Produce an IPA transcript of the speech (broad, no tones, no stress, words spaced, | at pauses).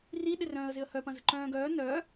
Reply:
ri ɗɪrœ̃ːə̯zɪə̯hœ pɐ̃zə̤ǃœ̃ːɡœː nœː